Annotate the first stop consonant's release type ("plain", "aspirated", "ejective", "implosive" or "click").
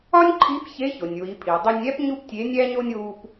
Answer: click